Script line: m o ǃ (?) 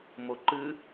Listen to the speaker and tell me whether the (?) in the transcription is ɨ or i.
ɨ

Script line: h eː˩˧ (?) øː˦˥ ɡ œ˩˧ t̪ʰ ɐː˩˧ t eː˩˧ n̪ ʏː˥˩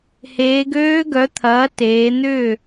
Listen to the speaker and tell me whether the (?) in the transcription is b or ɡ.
ɡ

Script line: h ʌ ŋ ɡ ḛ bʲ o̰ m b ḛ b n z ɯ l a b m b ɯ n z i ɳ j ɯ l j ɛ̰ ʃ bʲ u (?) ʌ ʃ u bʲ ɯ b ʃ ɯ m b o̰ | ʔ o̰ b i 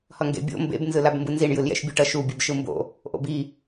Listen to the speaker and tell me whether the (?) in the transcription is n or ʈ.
ʈ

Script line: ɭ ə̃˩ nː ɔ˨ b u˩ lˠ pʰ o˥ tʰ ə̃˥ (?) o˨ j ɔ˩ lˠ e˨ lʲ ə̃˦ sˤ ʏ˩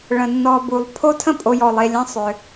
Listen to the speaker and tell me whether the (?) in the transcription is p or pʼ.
pʼ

